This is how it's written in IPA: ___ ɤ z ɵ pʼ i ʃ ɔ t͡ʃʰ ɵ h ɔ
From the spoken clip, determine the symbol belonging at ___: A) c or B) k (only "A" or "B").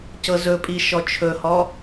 A